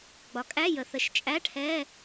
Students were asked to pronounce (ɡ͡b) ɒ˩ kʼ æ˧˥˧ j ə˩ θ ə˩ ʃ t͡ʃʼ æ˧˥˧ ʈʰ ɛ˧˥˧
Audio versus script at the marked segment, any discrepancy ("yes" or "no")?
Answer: no